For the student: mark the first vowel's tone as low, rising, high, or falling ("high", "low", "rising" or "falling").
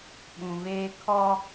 low